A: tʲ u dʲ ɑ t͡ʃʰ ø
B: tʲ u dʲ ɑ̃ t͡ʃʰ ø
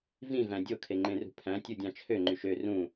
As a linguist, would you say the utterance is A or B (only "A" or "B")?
B